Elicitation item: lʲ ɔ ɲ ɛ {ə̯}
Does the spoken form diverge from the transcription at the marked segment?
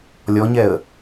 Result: no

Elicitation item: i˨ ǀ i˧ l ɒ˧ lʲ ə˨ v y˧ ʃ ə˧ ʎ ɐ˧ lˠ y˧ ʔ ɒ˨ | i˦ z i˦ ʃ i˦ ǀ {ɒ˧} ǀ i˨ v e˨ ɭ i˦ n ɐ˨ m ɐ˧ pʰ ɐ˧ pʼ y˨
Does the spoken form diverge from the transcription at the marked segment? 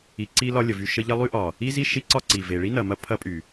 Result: yes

